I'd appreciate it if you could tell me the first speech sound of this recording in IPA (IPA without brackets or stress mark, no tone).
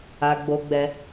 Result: a